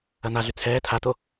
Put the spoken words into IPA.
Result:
ɐnaɮy t͡sʰɛː tʰato

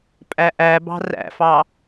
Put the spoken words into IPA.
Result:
pʼæʔæbɑ̤ ræ̰fɑ

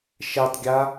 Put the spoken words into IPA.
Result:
ʃɛtˤɡʲa

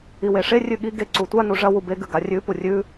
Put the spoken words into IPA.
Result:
iweʂe rʲʉɠi ɡe ǀutʷa nuʐɐ wube ɡʉɡarʲʉ purʲʉ

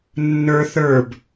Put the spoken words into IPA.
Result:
nːə˞ θə˞b

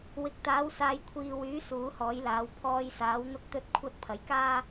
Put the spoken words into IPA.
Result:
wɪ˨˥k̚t̪aː˨˥w saː˨jkʷʰiː˨wyː˨˥ suː˨˥hɔː˨˥jlaː˨˥w pʰɔː˧jsaː˨˥w n̪ʊ˥k̚ t̪ɵ˥t̚kʷʰɐ˥t̚ pʰɐ˨˥jkaː˥

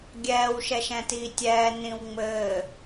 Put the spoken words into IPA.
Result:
ɡʲɛːw ʃɛʃɛ̃tiːtʲɛː nĩwŋ͡mɘː

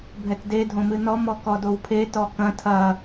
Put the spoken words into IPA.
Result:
bʱɛtdedʱõmɨ nɔmɔkɔ dowpʰe tɔkɐ̃ tʰɐ

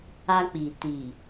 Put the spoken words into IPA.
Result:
a˧k͡pi˨ ti˨

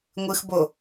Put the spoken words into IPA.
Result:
ŋʷɨxbo

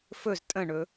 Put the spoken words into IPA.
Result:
fɵz tʼə̃ɳɵ

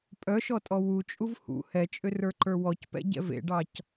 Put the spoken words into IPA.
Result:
pʼœʃɔtʼɔ wut͡ʃʼuv hṵ hɛt͡ʃʼʏrə˞ǃə˞ wɔcpɛ̰ɟɛ̰ vḛɖɑc

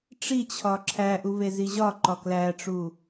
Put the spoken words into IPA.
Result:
ʈ͡ʂit͡ɕʰɒ ǁʰæʔu veziʑɒǃɒ klæʈ͡ʂu

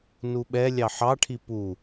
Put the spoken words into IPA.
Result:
nuɓɛlʲɑ ħɑʈʰi pu

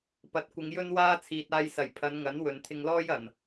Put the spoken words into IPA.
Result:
pɐ˨˥t̚kʷɪ˨˧ŋjɵ˥nwaː˥ t͡sʰiː˨t̚aː˧jsɐ˨˩j pʰɐ˨˧nŋɐ˨˥n wɵ˨nt̪ʰɪ˧ŋlɔː˥j ɐ˨˩n

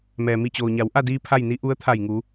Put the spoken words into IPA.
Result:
mɛː˩mi˧˩t͡ɕoː˩ɲa˩˧w ʔa˥˨diː˧ pʰa˥˨jni˧˥ ʔu˧˥ə̯t̪ʰa˧˩jŋu˩˧

